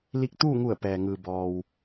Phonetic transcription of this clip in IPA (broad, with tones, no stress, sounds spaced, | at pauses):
l i˧ k̚ t̪ uː˥˨ ŋ u˧˩ ə̯ p ɛː˩ ŋ ɯː˩ b ɔː˩ w